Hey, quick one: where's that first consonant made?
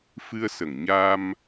lips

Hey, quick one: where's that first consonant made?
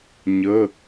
palate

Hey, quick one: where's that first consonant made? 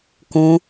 velum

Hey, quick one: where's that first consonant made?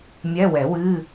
lips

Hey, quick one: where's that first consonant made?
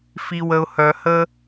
lips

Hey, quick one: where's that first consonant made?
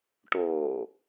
retroflex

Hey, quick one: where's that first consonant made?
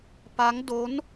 lips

